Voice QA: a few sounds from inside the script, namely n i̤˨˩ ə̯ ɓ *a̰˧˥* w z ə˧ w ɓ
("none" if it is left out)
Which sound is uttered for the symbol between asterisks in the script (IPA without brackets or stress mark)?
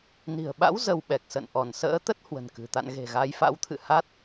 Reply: a̰˧˥